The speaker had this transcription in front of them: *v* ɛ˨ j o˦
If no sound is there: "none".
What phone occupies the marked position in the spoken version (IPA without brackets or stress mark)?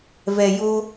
v